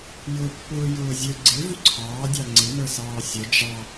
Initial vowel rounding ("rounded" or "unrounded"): rounded